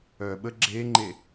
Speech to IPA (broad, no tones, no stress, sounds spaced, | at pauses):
œ ɓ ə ɡ͡ǁ e ŋ͡ǃ e